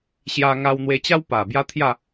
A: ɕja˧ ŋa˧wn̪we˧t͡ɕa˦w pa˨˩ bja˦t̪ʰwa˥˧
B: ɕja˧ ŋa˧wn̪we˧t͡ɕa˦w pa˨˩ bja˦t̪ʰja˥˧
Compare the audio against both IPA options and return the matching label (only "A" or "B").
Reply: B